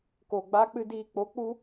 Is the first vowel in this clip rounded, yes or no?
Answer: yes